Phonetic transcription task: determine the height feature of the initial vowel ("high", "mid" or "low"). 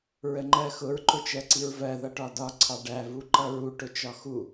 mid